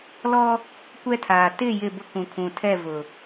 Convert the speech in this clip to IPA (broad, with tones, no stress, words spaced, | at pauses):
lɔ˦ | kʷɛ˦tʰaː˨ tɪ˦˨ jɪ˦˨bʊ˦kũ˨ kʰũ˨tʰɛ˦˨vʊ˨